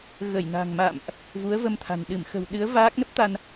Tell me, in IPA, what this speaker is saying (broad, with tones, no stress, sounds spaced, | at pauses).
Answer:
ɣ ə˧˩ j n a̤˨˩ ŋ m a̰ː˧˨ m ʔ | v u˨˦ ə̯ v ə˧ m t̪ʰ a̤˨˩ n ɗ ɨ˧˩ m x ə̤˨˩ w ɗ ɨ˨˦ ə̯ v aː˦˥ k̚ n ə˦˥ p̚ t̪ a˧ n